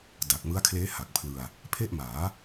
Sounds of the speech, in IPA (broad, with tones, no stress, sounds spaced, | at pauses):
d a˨˩ k̚ m ɯ˦˥ a̯ kʰ l eː˦˥ h a˨˩ k̚ pʰ l ɯ˧ a̯ | pʰ e˥˩ ʔ m aː˩˦